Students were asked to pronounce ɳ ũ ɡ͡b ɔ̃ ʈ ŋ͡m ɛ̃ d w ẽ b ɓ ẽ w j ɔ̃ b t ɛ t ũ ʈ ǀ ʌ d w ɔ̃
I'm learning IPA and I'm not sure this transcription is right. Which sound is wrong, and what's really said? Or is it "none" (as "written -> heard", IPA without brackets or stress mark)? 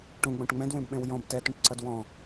ɳ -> ʈ